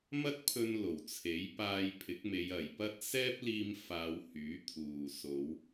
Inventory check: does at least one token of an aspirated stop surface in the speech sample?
yes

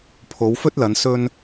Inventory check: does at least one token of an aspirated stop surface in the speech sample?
yes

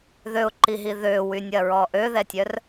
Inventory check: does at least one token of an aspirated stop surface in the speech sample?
no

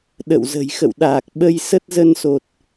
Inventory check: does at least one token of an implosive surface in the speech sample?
yes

